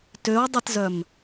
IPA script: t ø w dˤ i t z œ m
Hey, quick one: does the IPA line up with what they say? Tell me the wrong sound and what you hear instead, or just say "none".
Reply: none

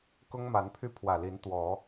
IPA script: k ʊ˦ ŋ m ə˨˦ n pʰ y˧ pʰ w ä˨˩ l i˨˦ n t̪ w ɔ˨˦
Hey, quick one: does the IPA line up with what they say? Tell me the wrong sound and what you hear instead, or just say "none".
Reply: ə˨˦ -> a˨˦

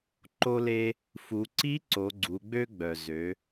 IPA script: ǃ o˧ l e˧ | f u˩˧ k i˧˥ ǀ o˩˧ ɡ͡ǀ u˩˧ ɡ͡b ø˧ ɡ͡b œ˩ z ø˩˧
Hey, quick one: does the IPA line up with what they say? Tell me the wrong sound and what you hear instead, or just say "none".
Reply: k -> ǀ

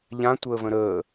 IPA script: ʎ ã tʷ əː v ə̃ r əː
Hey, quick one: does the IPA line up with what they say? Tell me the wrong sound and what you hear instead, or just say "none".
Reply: r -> ɾ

